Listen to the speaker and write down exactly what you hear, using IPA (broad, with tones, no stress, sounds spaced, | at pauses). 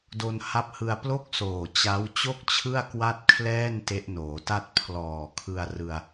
d o˧ n h a˥˩ p̚ h ɯ˧ a̯ p l o˥˩ k̚ s oː˨˩ t͡ɕ a˦˥ w t͡ɕ o˥˩ k̚ t͡ɕʰ ɯ˥˩ a̯ k w a˥˩ t̚ kʰ l ɛː˥˩ n t e˦˥ ʔ n oː˩˦ t a˥˩ t̚ pʰ l ɔː˨˩ kʰ ɯ˧ a̯ r ɯ˧ a̯